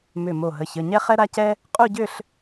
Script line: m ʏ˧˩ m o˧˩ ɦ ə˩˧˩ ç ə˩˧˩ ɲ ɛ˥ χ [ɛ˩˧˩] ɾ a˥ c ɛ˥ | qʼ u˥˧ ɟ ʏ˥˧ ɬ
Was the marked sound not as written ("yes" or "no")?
yes